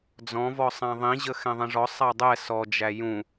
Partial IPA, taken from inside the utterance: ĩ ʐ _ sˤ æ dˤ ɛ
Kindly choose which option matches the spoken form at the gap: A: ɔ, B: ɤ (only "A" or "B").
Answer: A